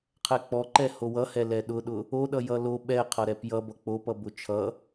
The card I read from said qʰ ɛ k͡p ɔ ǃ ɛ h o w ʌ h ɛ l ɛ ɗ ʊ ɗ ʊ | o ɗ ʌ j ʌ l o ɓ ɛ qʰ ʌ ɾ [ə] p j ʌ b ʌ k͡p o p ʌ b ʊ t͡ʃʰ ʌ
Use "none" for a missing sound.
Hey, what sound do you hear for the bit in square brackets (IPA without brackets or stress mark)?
ɛ